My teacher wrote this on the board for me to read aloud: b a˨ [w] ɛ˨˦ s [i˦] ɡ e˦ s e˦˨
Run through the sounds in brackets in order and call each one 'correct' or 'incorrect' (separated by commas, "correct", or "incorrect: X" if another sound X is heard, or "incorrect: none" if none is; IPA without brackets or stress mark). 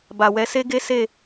correct, incorrect: e˦